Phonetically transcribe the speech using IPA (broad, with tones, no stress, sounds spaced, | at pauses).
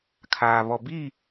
kʰ aː˨ β ɔ˨ b i˦˨